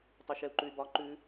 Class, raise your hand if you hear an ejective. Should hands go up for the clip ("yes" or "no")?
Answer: no